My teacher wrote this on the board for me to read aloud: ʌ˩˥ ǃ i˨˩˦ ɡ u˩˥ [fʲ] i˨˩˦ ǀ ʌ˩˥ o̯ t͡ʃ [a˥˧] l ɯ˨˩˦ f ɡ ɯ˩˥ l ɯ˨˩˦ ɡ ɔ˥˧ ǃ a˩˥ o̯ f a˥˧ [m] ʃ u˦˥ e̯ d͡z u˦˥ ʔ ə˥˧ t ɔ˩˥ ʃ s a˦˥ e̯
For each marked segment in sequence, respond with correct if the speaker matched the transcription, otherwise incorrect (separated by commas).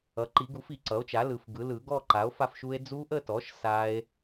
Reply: incorrect, incorrect, incorrect